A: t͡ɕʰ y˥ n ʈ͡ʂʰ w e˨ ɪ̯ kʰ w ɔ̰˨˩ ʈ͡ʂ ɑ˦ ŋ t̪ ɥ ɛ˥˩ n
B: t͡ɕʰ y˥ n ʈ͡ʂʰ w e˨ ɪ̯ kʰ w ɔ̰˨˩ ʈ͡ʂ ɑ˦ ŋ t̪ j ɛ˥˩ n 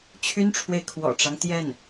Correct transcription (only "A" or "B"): B